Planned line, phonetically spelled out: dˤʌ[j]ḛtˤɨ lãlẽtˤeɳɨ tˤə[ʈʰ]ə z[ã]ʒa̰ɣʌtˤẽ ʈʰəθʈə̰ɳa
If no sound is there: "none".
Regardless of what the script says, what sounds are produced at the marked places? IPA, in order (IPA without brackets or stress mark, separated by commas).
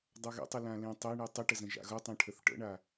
ɣ, ʈ, ə̃